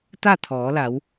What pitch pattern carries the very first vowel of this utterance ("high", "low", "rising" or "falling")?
falling